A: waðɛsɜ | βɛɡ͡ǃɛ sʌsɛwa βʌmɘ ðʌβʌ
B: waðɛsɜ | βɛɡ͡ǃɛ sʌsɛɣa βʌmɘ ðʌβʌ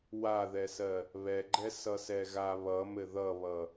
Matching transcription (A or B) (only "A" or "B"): B